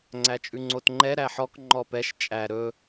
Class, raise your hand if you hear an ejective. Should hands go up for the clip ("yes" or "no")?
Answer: yes